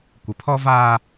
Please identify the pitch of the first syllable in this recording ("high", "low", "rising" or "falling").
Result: rising